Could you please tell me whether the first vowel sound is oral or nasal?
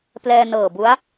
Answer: oral